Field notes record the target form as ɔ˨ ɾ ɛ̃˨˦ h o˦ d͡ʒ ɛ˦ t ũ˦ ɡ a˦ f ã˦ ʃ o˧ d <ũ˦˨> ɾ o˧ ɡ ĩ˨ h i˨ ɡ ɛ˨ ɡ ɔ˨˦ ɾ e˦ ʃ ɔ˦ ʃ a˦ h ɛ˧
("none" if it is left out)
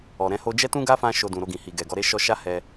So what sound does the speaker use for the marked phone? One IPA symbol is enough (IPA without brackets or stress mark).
ũ˨